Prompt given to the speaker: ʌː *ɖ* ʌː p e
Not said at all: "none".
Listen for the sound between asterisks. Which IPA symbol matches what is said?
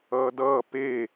d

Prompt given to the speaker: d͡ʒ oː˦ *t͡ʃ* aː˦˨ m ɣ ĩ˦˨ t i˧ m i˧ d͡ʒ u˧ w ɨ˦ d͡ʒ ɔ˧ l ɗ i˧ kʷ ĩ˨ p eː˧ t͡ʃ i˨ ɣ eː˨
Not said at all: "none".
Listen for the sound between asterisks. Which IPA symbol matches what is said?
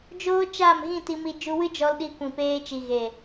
t͡ʃ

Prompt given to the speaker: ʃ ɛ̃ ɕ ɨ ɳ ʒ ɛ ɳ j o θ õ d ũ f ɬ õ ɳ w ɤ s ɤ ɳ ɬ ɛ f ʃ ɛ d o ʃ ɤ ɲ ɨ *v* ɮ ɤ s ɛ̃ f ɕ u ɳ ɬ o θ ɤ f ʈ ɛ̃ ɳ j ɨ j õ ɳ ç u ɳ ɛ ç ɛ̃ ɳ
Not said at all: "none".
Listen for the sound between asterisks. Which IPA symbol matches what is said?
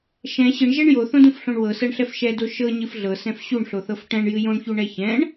f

